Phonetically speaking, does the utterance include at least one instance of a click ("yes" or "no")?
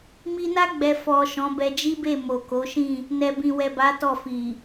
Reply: no